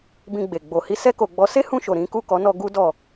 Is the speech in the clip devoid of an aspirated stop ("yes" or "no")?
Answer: yes